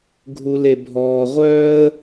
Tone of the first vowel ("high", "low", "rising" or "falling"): high